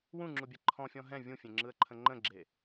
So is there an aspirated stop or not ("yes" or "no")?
yes